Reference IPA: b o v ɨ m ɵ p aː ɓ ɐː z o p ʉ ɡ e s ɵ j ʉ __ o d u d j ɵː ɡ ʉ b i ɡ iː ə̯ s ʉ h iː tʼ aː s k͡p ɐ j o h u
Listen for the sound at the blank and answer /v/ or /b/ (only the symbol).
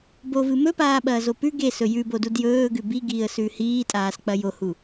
b